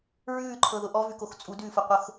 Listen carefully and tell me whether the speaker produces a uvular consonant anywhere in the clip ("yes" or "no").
yes